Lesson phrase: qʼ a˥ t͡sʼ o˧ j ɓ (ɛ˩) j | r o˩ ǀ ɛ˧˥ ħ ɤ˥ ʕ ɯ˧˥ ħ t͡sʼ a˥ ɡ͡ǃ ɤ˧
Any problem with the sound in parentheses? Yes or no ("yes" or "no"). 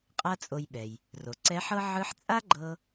no